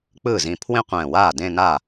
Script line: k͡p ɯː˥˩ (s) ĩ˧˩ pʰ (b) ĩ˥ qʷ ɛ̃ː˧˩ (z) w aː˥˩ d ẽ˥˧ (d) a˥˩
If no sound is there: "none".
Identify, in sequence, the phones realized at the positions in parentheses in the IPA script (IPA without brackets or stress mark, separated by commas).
z, w, none, n